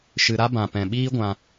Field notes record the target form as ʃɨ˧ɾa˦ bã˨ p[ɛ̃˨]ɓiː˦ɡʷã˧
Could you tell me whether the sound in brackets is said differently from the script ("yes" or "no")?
no